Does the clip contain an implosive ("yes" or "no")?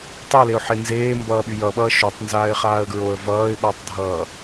yes